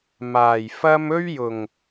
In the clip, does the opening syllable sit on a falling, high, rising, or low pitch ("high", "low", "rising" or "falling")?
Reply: low